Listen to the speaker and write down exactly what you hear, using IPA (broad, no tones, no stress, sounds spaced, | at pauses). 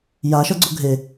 j a ʃ ʌ ɡ͡ǀ o ɡʱ e